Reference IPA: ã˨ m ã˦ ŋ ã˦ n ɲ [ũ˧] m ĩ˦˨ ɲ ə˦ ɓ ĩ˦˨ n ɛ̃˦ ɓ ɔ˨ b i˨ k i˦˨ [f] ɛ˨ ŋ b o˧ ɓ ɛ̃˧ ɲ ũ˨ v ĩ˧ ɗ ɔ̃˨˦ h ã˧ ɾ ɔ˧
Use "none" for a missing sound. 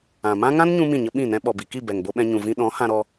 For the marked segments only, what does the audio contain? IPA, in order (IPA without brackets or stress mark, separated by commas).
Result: ũ˧, b